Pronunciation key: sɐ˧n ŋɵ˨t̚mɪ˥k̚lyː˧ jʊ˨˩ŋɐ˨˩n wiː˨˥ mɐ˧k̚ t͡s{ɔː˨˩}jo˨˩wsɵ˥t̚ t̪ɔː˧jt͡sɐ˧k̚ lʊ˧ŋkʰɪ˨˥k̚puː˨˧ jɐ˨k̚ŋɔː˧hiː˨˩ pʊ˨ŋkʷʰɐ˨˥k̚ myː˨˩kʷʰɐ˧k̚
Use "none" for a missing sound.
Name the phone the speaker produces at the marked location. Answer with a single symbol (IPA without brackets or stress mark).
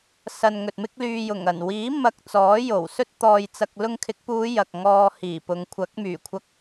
ɔː˨˥